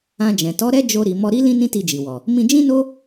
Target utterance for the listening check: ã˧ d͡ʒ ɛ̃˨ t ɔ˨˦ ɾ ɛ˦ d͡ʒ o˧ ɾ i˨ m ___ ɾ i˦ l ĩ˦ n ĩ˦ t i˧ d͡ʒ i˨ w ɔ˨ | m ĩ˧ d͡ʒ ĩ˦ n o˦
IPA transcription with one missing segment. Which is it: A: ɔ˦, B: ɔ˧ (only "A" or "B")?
B